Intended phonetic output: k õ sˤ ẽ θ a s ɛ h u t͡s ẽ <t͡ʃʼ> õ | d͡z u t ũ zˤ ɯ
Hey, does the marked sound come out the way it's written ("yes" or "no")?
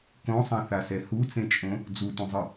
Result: yes